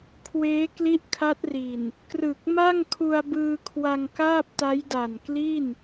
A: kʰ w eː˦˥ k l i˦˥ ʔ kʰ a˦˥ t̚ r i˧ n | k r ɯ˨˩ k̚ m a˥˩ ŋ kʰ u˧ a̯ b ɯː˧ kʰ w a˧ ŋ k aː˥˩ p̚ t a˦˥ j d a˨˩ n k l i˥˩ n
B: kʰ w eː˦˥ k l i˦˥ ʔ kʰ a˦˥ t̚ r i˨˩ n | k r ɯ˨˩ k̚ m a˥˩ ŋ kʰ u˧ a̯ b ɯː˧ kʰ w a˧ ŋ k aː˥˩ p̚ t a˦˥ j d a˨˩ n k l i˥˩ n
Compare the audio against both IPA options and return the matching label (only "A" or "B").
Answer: B